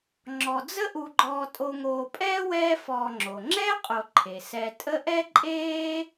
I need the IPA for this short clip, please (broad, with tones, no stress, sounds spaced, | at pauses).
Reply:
ŋ͡ǁ ɔ˨ d͡z ə˦ ʔ u˨ ɡ͡ǃ ɔː˨ tʼ o˨ ŋ oː˨ pʼ ɛː˥ w ɛː˦ f ɔː˨ ŋ͡ǁ o˩ ŋ͡ǁ ɛ˥ qʼ o˨ ǃʰ e˩ s ɛ˨ tʼ ə˦ ʔ ɛ˥ ǃʼ eː˥